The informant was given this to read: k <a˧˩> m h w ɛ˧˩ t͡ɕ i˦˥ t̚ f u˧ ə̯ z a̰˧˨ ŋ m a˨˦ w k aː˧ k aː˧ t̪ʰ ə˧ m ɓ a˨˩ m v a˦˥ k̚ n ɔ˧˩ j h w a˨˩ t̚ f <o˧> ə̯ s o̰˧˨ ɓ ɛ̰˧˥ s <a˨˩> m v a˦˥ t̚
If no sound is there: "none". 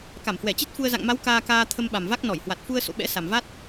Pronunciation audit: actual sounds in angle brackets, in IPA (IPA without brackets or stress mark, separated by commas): a˧˩, u˧, a˨˩